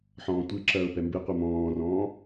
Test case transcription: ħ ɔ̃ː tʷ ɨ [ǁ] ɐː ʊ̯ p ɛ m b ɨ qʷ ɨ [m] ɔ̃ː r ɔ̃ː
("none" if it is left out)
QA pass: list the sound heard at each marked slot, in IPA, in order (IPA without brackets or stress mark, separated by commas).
ǁ, m